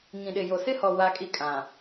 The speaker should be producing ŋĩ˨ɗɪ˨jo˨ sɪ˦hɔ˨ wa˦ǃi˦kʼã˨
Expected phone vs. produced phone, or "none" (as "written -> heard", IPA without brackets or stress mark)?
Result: ǃ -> kʼ